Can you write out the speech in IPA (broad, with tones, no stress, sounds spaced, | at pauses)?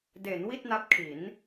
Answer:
d e˩˦ n w i˥˩ t̚ n a˦˥ p̚ kʰ i˩˦ n